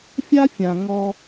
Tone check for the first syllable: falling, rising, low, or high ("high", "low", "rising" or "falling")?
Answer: high